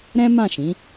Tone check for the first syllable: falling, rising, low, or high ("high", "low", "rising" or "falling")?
high